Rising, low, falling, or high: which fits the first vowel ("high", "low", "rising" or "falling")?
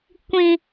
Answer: high